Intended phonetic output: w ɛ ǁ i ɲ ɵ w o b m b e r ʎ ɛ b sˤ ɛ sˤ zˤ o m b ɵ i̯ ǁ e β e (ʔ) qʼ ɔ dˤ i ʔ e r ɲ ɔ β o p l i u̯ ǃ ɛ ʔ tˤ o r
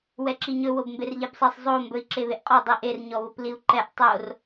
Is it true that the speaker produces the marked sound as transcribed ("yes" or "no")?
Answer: yes